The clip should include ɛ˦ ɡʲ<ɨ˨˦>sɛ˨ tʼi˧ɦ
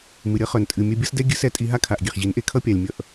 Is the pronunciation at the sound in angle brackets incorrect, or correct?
correct